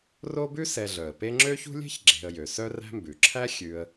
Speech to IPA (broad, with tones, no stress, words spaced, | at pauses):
ro˦bʉ˦ sɛ˨ ɮœ˩ə̯pe˦ŋ͡ǁø˥çṳ˥ lʲe̤˥çɡ͡ǁe̤˨ə̯jø˩ sœ˦ræ̤˦mbʉ˩ǁʰæ˥ xʲʉ˦ə̯